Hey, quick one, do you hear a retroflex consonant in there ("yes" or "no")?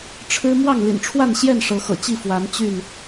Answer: yes